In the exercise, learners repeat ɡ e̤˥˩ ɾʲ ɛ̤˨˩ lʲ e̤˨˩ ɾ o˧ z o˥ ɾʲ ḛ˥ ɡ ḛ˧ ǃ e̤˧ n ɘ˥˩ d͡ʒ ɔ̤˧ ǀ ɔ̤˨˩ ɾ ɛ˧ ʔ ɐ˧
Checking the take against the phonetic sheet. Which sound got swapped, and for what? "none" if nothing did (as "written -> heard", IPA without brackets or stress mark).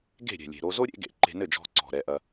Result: none